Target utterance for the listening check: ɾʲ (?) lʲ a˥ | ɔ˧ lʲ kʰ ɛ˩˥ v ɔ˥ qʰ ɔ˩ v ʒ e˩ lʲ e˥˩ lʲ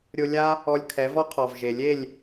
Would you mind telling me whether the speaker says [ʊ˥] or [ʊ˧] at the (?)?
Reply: ʊ˧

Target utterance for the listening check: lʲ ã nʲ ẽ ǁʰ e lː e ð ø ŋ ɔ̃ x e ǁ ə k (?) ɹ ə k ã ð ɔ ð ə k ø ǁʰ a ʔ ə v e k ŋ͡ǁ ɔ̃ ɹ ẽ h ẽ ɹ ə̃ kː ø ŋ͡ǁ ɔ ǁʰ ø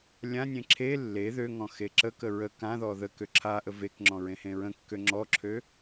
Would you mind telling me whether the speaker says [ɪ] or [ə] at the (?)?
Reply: ə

